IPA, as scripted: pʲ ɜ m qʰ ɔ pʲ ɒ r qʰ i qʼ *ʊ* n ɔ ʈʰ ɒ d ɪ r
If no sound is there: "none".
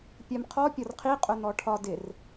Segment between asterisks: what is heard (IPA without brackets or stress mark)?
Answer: ʊ